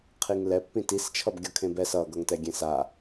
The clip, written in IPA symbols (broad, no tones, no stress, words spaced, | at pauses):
qʰiŋlɛpːĩ tist͡ʃʰʌbɡʲʌkʰẽb ɛs ʌɡʌŋtɛ ɡʲẽsa